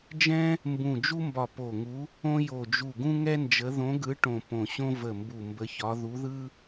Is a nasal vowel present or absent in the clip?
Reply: present